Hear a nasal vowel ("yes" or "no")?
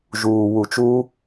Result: no